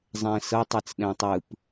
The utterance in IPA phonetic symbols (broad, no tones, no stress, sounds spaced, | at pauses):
zˤ ɛ̃ s ɤ tˤ ɛ t͡s ɗ ɛ̃ tˤ ɯ p